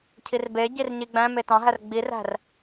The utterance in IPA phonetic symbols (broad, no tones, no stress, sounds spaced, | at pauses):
cʰ i r b e ɟ i r ɲ i ɡ͡b æ̃ m e t ɑ̃ ɦ æ r ɡ͡b i r æ̤ r